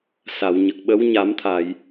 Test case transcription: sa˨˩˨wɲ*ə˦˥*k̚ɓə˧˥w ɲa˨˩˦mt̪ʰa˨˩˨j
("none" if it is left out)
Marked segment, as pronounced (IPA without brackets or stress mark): ə˨˩